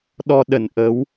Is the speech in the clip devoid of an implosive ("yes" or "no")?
no